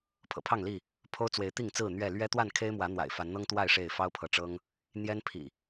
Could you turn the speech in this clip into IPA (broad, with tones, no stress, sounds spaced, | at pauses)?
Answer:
pʰ ɤ̰˨˩ pʰ ɑ˥˨ ŋ l i˥˨ | pʰ o˦ ʊ̯ t͡s w e˨˦ ɪ̯ t̪ i˥˨ ŋ t͡s ɹ̩˥˨ n̪ ɥ ɛ˥˨ l ɥ ɛ˦ t̪ w a˥˨ n kʰ e˦ ɪ̯ m w ä˨˦ n̪ w a̰˨˩ ɪ̯ f a˨˦ n n̪ ɤ˦ ŋ t̪ w a˥˨ ɪ̯ ʂ e˥˨ ɪ̯ f ɑ˦ ʊ̯ pʰ ɤ˨ ʈ͡ʂ ɤ˦ ŋ | n̪ j ɛ˦ n pʰ ḭ˨˩